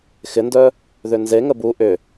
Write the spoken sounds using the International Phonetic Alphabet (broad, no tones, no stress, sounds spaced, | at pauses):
x ɪ n d œ | ð ʏ n z e ŋ ə b u ʔ ʏ